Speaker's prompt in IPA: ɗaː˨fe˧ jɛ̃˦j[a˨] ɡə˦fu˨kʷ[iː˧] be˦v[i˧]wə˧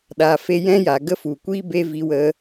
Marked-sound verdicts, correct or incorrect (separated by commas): correct, incorrect, correct